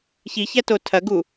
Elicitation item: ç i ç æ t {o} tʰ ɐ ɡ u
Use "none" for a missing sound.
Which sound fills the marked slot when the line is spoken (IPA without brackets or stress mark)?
o